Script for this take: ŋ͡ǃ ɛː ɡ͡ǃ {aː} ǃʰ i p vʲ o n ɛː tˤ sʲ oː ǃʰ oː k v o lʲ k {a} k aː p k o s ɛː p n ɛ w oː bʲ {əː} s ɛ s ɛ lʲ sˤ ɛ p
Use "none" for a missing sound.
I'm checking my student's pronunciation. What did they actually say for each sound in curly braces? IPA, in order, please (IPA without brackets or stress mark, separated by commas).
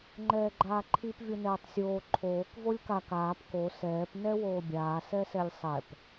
aː, a, aː